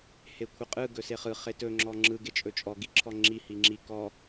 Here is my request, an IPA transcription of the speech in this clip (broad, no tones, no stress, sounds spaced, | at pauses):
h e kʷʰ ɯ qʼ ɯ ɡ ɵ s e χ ɯ χ e t ɵ ŋ͡ǁ ɔ ŋ͡ǁ ɯ ɡ e t͡ʃʼ ɵ t͡ʃʼ ɔ ɡ i ǁʰ ɔ ŋ͡ǁ i h i ŋ͡ǁ i k ɔ